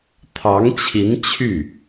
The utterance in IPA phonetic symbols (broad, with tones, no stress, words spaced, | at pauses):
t̪ʰɑ˧˥ŋt͡ɕʰi˧˥n t͡ɕʰy˥˩